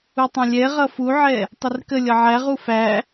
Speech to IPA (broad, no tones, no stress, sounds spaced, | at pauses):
u tˤ ɛ̃ lʲ ɛ ʁ ʌ f u ʕ ɛ | tˤ ɪ r k ə lʲ ʌ ʕ æ ʁ u f æ